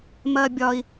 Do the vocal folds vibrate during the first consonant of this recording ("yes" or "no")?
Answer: yes